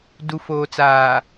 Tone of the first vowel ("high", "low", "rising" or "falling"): low